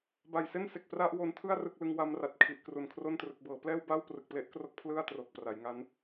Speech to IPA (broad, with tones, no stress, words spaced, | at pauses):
ba˨˩jse˥˩nse˨˩k̚ pra˥˩ʔwo˧ntʰɯ˥˩a̯ rɯ˥˩k̚ lɯ˧ŋwa˦˥mra˨˩t̚kʰi˨˩ʔ kru˨˩nkʰro˥˩n trɯ˨˩k̚bɤː˩˦plɛː˥˩w ba˥˩wprɯ˨˩k̚ple˦˥ʔkro˦˥k̚ pʰlɯ˥˩a̯ tro˨˩k̚pra˩˦jŋa˦˥n